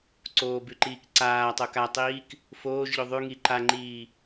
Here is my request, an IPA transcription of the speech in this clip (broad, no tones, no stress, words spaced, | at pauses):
ǀoːbʉǃiːk ǀaːtˤo katˤiːk | foːʒʎo ðˤʉŋi ǃaŋ͡ǃiː